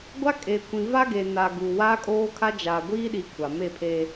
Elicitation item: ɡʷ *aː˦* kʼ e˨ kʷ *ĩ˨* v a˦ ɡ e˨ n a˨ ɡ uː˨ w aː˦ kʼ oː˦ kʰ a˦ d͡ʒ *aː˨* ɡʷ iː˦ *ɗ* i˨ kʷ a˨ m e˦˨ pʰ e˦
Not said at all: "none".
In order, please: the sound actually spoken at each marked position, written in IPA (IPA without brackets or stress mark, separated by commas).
a˦, ĩ˨, aː˨, ɗ